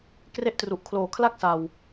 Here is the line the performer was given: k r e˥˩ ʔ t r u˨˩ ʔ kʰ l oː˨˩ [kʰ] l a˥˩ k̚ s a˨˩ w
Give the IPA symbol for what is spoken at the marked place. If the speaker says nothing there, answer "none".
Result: kʰ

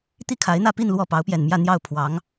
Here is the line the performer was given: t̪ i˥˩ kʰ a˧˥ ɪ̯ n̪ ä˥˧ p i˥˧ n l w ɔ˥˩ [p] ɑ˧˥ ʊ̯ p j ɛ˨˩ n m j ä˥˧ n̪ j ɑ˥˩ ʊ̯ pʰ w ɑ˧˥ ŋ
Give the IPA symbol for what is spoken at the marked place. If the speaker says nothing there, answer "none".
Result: p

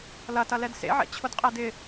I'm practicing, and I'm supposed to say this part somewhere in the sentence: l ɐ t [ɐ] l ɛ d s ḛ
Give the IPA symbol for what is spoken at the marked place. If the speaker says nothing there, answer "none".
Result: ɐ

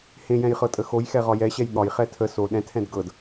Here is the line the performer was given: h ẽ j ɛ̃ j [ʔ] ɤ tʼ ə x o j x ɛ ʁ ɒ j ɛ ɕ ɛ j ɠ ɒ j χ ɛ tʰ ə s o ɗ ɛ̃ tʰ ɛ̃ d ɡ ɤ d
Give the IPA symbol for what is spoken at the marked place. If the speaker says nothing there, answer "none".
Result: χ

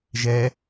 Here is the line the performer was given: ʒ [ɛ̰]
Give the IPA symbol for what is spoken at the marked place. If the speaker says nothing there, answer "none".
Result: ɛ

